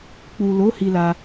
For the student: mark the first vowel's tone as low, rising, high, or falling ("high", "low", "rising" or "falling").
low